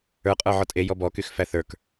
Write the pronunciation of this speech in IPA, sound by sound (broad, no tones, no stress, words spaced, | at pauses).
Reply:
ə˞qʼə˞ ʕɔtʼe jɔbɔkyx fæθə˞k